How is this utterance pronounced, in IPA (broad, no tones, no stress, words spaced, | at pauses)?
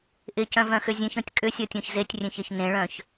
ʔɪcœ̃vœ̃xʏ zʲẽçɔ̃tʲ kʼʏsʲɔtʲɔ̃ç zetʲrʲẽçeç nẽɭœ̃ç